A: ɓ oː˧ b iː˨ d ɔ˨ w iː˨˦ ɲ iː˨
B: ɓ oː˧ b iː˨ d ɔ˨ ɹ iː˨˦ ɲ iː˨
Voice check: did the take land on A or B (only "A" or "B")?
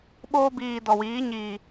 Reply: A